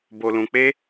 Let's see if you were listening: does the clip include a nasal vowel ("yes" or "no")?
yes